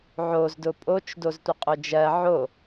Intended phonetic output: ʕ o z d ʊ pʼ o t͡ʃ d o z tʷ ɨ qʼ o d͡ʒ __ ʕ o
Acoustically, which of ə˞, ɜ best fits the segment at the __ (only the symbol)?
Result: ɜ